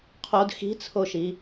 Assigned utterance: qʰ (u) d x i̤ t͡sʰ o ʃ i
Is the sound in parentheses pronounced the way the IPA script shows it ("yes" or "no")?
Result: no